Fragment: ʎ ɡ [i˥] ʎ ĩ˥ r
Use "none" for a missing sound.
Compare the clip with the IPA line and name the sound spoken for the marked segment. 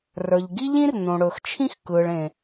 i˥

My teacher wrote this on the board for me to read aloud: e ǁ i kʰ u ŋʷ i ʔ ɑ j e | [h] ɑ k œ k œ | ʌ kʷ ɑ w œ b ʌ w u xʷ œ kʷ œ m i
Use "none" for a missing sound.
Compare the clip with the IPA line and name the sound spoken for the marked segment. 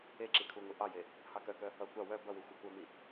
h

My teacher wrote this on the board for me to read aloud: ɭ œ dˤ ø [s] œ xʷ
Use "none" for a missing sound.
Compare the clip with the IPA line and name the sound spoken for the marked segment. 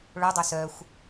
s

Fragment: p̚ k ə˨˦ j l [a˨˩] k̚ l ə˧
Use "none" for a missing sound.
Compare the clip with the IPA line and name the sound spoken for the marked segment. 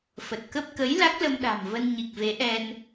a˦˥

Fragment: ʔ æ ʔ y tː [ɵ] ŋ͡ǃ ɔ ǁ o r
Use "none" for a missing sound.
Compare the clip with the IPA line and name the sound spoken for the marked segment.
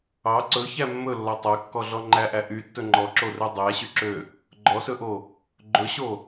ɵ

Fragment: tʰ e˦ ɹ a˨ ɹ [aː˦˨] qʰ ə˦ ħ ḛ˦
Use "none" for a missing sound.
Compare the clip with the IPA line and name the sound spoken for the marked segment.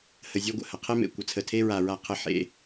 a˦˨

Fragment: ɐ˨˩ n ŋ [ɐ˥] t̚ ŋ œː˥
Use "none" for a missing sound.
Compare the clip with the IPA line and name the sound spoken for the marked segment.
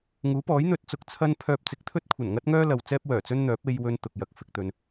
ɐ˥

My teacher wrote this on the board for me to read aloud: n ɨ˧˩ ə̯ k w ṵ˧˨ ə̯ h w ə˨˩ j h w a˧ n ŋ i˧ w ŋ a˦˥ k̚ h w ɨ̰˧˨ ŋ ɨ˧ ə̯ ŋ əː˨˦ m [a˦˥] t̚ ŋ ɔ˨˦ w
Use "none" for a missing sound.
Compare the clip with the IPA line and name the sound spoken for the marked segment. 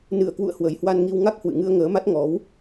a˦˥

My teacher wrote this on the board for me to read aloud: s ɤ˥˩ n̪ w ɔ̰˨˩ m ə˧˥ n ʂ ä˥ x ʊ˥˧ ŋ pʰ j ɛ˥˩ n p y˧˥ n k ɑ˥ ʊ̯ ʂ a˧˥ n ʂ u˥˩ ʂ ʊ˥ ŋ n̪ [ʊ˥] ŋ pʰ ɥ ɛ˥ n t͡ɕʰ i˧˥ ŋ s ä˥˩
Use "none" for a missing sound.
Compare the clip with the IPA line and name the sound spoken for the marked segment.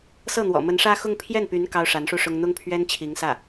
ʊ˥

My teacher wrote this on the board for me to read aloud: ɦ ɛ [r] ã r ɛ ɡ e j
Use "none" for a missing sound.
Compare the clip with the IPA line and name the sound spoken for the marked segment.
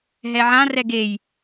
ʕ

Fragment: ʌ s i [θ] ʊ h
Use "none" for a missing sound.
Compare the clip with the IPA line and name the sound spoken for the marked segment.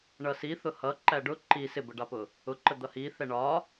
θ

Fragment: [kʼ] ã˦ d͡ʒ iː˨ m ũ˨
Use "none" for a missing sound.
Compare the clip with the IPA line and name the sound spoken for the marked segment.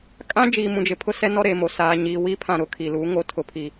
kʼ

